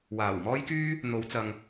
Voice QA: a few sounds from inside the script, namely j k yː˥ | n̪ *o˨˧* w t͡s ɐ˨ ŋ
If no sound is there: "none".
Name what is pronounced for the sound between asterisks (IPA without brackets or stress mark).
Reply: o˨˧